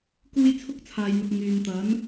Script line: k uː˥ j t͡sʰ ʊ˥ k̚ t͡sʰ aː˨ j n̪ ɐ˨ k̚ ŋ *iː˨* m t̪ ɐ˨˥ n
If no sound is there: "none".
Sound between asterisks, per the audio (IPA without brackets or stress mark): yː˨